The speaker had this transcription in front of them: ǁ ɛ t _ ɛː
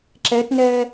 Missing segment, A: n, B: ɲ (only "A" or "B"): A